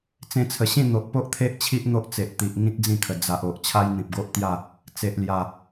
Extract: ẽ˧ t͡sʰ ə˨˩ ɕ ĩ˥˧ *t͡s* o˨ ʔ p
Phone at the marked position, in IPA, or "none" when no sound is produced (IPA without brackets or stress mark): n̪